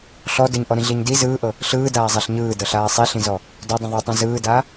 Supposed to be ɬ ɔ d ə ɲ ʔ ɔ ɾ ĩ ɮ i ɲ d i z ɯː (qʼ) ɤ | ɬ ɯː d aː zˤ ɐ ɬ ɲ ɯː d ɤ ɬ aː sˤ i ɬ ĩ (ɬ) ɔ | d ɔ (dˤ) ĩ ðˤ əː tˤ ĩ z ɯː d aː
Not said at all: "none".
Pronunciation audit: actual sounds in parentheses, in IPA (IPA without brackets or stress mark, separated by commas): ʔ, z, dˤ